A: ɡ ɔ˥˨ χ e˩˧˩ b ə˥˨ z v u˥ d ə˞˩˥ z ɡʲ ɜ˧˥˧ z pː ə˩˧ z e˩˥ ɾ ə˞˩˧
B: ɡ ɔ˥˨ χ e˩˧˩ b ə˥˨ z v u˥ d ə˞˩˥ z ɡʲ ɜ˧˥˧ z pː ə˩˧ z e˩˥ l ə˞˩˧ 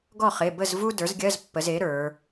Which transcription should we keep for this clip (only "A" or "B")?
A